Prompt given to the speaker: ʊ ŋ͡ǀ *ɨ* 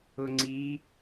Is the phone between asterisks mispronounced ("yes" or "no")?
yes